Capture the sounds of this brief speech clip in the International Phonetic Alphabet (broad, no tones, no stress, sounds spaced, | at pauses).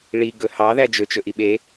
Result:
ɭ i ɡ ɵ h ɑ ð æ d͡ʒ ɵ t͡ʃ ɵ ʔ i ɓ e